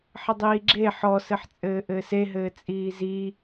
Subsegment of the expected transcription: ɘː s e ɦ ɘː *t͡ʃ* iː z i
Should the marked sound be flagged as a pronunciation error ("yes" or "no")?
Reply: yes